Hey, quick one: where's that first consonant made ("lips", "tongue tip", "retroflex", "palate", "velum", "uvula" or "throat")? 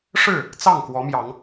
retroflex